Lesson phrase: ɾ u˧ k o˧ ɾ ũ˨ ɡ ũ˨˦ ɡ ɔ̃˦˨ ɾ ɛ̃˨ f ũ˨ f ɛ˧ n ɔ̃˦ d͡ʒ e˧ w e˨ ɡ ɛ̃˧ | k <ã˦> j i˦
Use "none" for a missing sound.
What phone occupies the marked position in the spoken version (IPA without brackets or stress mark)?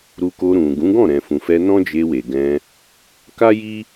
a˦